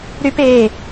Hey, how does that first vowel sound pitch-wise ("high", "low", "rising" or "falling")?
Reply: high